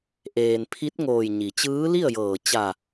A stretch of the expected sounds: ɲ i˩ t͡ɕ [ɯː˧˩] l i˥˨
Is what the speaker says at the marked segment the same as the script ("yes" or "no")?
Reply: no